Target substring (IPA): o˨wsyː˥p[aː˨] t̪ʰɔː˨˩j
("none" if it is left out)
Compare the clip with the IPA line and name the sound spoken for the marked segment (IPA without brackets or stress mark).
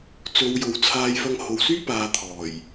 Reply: aː˨